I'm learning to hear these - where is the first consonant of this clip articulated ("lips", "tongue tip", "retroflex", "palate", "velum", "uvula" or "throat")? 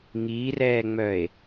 velum